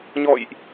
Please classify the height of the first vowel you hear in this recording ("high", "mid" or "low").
mid